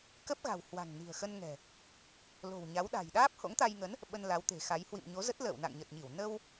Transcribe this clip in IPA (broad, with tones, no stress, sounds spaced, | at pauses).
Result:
k ə˦˥ p̚ ɣ a̤˨˩ w h w a̤˨˩ ŋ n i̤˨˩ ə̯ x ə˧ n ŋ ɛ̤˨˩ | l o̤˨˩ w ɲ a˨˦ w ɗ a̤˨˩ j ɗ aː˦˥ p̚ h o̰˧˥ ŋ t̪ a˧ j ŋ ə˨˦ n | ɓ ə˧ n l a˨˦ w t̪ e̤˨˩ x a˨˦ j h w ḭ˧˨ m ɲ o˨˦ z ə˦˥ t̚ l ə̰ː˧˨ w n a̰˧˨ ŋ ɲ ə˨˩ t̚ ɲ i˧˩ w n ə˧ w